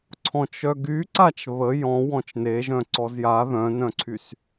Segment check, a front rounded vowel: present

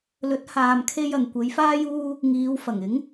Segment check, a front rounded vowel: absent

